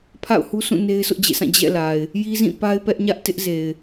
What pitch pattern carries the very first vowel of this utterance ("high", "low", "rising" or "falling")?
falling